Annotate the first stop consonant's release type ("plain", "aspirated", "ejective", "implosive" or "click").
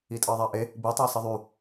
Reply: ejective